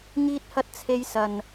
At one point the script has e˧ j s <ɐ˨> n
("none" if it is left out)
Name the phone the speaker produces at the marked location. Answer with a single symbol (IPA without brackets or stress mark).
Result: ɐ˨